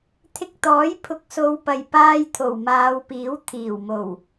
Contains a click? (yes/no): no